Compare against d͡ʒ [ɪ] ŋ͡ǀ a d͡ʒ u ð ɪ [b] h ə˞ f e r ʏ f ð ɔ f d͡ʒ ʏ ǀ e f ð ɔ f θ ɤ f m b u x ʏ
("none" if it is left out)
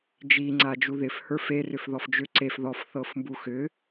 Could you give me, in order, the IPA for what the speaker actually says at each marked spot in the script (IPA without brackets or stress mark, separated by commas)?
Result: i, f